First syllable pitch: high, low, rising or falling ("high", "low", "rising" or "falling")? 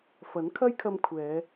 rising